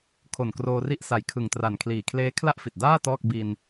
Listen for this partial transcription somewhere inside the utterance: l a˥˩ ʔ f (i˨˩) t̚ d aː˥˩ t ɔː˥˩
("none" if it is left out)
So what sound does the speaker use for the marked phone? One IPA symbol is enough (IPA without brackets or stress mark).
i˨˩